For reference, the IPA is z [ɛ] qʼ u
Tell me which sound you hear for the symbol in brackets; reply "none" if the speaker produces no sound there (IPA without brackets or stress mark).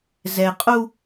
ɛ